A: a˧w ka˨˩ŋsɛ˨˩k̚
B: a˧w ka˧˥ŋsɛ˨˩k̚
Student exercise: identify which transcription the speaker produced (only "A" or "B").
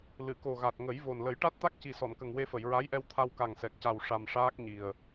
A